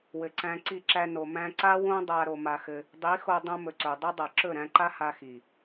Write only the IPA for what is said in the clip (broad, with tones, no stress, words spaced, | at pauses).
wɘ˨ǀæ̃˧ ǀi˧ǁæ˧ no˨mæ̃˧ǀa˦ wõ˦dˤa˧ ɾo˧ma˧xɘ˧ | dˤi˨˦xo˧ dˤõ˧mɵ˨ ǀɵ˨ dˤɵ˦dˤa˨ ǁɵ˦˨ɾæ̃˧ǃa˦ ha˧xi˨